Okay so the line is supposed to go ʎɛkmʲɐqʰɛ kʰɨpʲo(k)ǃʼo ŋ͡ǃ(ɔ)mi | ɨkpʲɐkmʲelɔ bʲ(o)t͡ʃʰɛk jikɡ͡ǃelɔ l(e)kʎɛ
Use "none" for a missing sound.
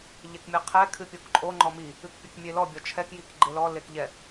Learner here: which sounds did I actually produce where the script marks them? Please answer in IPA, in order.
k, ɔ, ɔ, e

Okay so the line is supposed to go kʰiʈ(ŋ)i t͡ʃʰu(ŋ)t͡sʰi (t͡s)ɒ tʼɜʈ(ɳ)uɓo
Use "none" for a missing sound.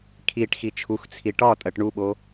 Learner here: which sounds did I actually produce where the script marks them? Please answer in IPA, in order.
x, x, ʈ, ɳ

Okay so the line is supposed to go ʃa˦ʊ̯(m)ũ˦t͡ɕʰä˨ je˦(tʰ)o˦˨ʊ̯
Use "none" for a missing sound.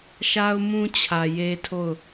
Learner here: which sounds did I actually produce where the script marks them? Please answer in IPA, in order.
m, tʰ

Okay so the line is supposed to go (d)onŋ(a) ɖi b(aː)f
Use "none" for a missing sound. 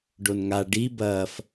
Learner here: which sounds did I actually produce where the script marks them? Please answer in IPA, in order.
ɖ, a, ɐː

